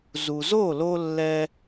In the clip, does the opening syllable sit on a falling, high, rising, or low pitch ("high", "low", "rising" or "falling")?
low